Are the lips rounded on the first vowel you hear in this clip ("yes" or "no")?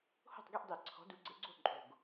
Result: yes